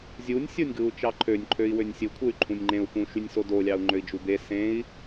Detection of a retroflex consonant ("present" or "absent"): absent